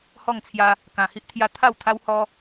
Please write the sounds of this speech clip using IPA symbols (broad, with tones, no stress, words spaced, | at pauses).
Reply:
hɔ˥˧ŋt͡sʰja˦ | kã˧hi˦ʔt̪ʰja˦ t̪ʰa˥˧wt̪ʰa˦whɔ˦